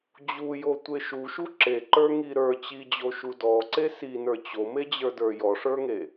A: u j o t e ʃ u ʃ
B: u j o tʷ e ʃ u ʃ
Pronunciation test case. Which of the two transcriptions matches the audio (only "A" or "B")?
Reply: B